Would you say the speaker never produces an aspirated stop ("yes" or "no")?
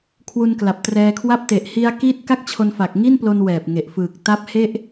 no